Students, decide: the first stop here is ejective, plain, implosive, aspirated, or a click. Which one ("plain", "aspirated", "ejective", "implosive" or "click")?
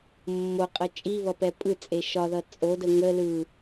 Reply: ejective